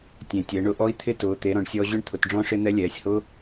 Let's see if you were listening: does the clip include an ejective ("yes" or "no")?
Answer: no